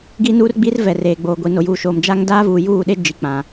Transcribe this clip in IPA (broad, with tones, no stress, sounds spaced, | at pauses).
ɡ i˦ n uː˦ r ɡ͡b i˦ r v ɛ˨ r eː˨ ɡ͡b oː˨ ɡʷ i˨ n o˨ j uː˨ ʃ oː˨ m d͡ʒ a˦ ŋ d aː˦ v uː˨ j uː˦˨ ɗ e˦ d͡ʒ i˨ k͡p ã˨